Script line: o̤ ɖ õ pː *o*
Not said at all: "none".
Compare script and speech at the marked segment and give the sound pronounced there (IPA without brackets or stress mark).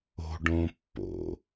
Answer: o̰